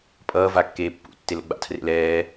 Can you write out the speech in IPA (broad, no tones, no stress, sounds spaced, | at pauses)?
pʼ ʌː v a kː eː pː ṵ tː e l o̰ ɡ͡b a̰ tʰ r ḛ l ɛː